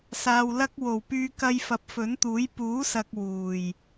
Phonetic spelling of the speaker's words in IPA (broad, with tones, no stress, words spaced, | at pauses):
saː˨wlɐ˥k̚ wo˨˩wpyː˧ kɐ˧jfɐ˨˥p̚fɵ˨˥nt̪uː˨˥j puː˨˥sɐ˨k̚ wuː˨˩j